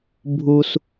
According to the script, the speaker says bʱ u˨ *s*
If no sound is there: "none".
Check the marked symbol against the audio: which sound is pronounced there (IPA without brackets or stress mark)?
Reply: s